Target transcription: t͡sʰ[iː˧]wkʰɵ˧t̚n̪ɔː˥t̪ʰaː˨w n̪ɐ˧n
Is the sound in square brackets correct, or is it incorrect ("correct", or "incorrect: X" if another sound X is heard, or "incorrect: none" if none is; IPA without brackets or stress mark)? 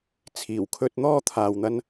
incorrect: iː˨˩